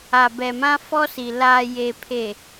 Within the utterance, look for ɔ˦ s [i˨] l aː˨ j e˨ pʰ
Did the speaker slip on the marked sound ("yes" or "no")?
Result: no